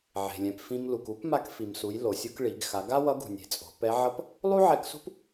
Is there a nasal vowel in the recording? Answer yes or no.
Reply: yes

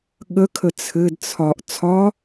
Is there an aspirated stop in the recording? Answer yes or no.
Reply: yes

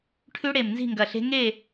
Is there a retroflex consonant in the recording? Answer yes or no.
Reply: yes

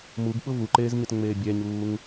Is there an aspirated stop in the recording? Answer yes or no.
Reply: no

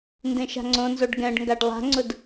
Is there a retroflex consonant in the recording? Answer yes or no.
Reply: yes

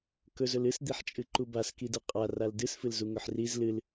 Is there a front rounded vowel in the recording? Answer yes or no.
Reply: no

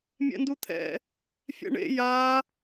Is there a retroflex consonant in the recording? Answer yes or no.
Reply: yes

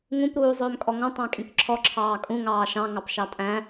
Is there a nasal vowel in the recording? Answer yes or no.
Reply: yes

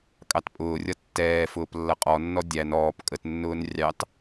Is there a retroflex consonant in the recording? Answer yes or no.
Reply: no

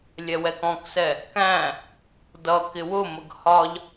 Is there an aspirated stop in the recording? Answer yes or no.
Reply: no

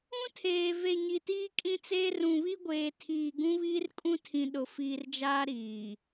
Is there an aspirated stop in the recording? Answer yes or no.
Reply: yes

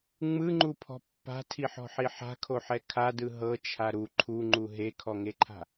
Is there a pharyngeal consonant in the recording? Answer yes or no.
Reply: yes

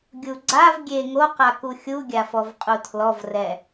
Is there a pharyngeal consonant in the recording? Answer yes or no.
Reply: no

